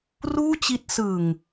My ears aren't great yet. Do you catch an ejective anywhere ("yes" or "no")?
no